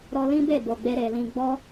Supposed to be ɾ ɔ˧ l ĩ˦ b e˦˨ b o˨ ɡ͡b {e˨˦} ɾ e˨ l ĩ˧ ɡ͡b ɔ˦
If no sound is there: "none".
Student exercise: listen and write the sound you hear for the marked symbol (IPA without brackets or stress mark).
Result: e˧